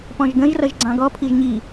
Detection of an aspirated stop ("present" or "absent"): present